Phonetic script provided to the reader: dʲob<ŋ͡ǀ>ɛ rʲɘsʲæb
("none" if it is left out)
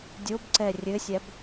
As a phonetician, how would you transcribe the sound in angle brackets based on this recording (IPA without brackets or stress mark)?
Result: ǀ